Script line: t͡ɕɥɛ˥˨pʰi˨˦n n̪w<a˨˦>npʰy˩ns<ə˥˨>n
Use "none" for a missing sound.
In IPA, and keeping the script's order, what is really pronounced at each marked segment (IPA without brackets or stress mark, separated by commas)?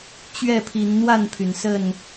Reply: a˥˨, ə˥˨